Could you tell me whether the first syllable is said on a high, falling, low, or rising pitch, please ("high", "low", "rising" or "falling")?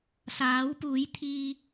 rising